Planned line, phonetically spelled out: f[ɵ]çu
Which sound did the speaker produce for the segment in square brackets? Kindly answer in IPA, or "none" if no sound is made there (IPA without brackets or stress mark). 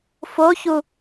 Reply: o